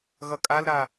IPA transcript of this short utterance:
ɣ ʌ kʼ a l ɾ a

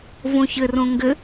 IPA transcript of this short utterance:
v õ ç ɘ r õ ŋ ɡ ɘ

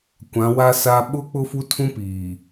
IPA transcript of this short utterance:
kʷ ã˨˦ w a˦ s a˦ ɓ ʊ˦ k͡p ʊ˦ f u˦ tʰ ũ˦ p iː˨

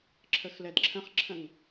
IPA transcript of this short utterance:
ǁʰ ə x l ɛ d ǁʰ ə̃ χ ǁʰ ə̃ ŋ

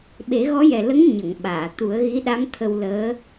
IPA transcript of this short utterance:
ɓ e˨˩˦ ɣ ɔ˧˥ j ɛ˨˩ l ə˧˥ ŋ ɲ ə˨˩˨ ŋ ɓ aː˨˩˨ t̪ u˨˩˦ ə̯ ɣ i˧˥ ɗ a˧˥ m t̪ʰ ə˧ w l əː˧˥

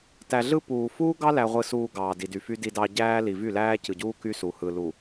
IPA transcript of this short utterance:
t æ˨ ɮ ɯ˦ p uː˨ f uː˦ ɡ ɑ˦ l æ˨ ʁʷ ɯ˨ s uː˨ ɡ ɑː˨ d i˨ d y˨ f y˦ d i˨ d ɑ˨ ɟ æː˦ l i˨ v y˦˨ l æː˦ c ɯ˨ ɟ uː˦ k y˦ s u˨ h ɯ˨ l u˨

